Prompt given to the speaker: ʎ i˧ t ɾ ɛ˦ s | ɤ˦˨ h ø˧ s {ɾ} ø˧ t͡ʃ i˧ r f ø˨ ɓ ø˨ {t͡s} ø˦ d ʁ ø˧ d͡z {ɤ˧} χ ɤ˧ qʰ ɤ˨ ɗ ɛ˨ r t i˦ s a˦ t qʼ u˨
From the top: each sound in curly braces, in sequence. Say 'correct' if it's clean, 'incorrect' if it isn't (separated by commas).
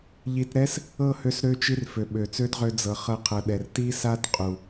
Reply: correct, correct, incorrect